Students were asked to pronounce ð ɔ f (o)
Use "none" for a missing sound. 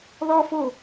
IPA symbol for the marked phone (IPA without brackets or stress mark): o